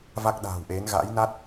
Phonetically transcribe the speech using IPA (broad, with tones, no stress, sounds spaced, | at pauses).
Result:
v a˦˥ k̚ ɗ a̤ː˨˩ w ʔ e˨˦ n ɣ a̰˧˥ j n a˦˥ t̚